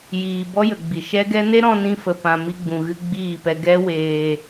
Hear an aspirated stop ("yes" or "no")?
no